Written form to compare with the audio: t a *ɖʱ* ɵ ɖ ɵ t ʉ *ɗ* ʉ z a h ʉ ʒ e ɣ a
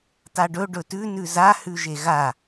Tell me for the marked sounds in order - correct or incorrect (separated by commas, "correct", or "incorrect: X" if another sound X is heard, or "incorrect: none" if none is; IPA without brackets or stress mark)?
incorrect: ɖ, incorrect: n